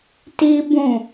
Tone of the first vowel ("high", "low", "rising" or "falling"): high